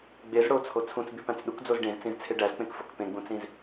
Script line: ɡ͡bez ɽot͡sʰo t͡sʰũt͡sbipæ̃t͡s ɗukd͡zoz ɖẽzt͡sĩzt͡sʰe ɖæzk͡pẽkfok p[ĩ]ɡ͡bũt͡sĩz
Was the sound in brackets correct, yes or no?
no